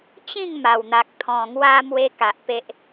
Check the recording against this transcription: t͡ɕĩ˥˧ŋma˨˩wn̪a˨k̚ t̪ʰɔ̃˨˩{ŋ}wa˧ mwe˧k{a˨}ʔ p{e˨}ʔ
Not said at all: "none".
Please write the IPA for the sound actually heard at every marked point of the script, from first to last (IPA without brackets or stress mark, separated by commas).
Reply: ŋ, a˨, e˦